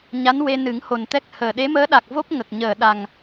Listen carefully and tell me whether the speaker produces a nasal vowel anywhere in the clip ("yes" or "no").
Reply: no